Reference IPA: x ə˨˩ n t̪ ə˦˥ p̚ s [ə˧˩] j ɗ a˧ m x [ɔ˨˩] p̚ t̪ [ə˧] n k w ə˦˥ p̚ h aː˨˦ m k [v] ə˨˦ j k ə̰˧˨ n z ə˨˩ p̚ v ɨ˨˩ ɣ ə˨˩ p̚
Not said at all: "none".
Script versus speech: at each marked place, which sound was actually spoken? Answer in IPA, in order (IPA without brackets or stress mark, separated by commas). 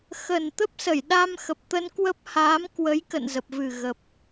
ə˧˩, ə˨˩, ə˧, w